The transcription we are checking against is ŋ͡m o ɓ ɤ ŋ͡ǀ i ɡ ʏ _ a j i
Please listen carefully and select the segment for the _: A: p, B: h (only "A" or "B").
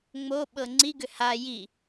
B